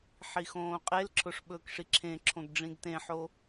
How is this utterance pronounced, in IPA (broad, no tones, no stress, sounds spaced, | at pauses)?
ħ i x õː qʼ e l ǁʰ ʊ ʂ ɓ ɵː k ʂ i ǁʰ ẽ ǁʰ õ ɡ ɖ͡ʐ ĩ ɡ t ẽ ħ o